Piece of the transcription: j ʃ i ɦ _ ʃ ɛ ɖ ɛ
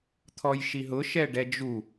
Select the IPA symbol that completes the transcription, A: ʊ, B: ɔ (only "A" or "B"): A